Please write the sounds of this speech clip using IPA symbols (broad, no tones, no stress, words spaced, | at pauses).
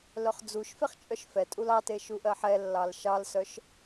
lœχd͡zuʃfeχ t͡ʃʼœʃfɛtʼul ɑte ʃuʔɜħɛlːɑl ʃɑlsœʃ